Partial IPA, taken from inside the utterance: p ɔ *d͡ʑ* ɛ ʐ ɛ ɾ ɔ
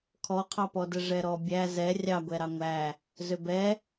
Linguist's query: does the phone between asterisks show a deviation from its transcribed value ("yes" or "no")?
yes